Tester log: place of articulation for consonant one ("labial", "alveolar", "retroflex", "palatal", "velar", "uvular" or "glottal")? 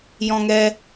palatal